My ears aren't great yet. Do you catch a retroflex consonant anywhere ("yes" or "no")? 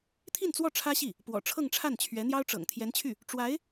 yes